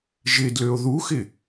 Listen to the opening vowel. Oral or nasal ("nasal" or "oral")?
oral